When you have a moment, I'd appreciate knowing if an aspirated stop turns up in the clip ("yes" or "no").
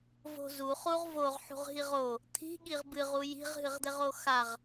yes